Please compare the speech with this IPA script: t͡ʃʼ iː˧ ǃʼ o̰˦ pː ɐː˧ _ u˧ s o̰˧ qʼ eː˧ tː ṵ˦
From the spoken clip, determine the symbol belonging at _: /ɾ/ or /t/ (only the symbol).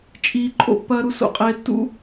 ɾ